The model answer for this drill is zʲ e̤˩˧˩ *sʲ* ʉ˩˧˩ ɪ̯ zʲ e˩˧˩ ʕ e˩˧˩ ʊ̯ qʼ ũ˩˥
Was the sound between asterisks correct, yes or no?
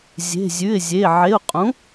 no